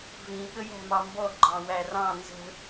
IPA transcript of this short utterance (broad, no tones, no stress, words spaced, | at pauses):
vĩ ɠəjæ̤mɑmbɔ ɡ͡ǃɑ̃wærɑ̃ nzə̤